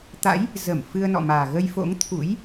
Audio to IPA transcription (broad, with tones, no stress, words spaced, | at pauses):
t̪a̰˧˥j | zə˧˩m fɨ˧ə̯nɔ̰˧˨maː˨˩ ɣə˧jfo̰˧˥ŋ t̪ʰṵ˧˥j